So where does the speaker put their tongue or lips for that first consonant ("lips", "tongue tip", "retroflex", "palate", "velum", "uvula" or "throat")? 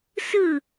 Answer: tongue tip